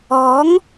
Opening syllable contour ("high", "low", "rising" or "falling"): rising